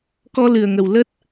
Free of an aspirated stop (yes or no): yes